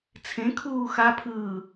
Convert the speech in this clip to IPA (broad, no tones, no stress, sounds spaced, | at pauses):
t͡sʰ ẽ kʰ uː x a pʰ ɯː